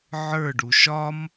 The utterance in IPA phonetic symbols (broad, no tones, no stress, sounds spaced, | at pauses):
ʕ ə˞ ɖ u ʃ ɒ m